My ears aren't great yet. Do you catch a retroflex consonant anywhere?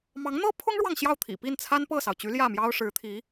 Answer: yes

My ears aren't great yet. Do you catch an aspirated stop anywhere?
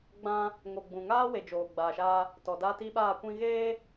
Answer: no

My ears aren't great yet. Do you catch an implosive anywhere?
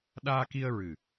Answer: yes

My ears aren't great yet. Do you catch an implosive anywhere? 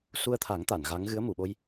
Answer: yes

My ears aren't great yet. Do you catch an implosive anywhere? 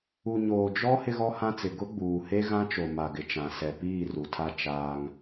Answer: no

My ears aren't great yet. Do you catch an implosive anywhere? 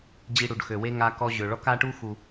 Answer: no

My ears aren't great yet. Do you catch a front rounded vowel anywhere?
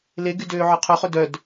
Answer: yes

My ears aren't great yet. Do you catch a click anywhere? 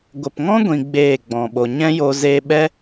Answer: no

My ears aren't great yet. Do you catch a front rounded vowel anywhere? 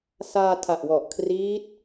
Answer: no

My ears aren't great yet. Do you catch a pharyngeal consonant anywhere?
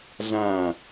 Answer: no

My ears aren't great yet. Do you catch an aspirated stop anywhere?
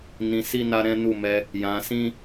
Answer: no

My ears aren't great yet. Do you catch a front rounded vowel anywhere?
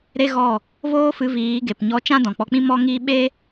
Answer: no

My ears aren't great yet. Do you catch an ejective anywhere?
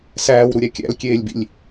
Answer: no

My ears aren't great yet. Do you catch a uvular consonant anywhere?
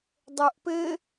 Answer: no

